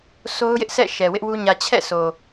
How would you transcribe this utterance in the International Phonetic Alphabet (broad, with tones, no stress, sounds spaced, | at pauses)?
s o˦ ʊ̯ j ɪ˦ ʔ s ɛ̰˦˨ ʃ ɛ˨ w ɪ˦ ʔ w u˦ ɲ ä˨ t͡ɕʰ ɛ̰˦˨ s o˨